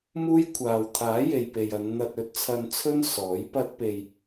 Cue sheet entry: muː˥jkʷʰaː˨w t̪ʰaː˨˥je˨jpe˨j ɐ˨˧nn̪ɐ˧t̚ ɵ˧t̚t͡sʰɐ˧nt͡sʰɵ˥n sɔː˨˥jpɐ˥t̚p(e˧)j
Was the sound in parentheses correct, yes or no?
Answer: yes